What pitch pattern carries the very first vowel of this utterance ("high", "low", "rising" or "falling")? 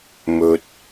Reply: low